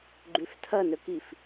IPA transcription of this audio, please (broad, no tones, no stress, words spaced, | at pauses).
ɡ͡ǃʉftʰɐnɵkif